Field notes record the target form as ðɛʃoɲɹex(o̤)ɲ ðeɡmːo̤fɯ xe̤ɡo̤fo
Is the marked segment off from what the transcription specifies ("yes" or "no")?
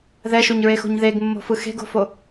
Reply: no